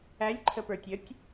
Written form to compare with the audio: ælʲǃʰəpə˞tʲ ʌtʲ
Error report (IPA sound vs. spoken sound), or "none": none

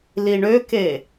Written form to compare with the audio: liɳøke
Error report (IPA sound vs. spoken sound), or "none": none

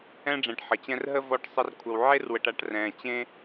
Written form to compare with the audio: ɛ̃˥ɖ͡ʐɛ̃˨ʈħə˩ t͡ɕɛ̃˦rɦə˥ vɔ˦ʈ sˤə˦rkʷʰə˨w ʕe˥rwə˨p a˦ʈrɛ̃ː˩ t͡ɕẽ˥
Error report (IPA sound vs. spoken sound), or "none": p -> ʈ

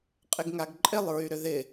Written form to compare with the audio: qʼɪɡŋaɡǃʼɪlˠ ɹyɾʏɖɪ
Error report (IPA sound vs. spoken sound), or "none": ɖ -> ð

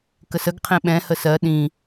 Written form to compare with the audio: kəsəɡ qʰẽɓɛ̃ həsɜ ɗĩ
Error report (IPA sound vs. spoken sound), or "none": none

